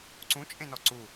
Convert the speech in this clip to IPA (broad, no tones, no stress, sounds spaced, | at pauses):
ǀ ũ t͡ʃʼ ẽ n ɔ ǀ u